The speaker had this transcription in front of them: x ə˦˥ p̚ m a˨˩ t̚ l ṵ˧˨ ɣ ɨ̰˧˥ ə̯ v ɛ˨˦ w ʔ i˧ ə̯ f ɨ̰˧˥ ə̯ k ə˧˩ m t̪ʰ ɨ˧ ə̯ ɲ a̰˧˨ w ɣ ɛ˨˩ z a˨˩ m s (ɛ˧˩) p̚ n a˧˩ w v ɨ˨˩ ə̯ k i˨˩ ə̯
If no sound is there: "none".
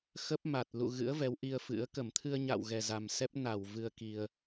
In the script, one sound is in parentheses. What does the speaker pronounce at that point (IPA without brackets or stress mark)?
ɛ˦˥